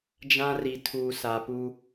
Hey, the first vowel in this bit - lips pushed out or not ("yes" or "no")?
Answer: no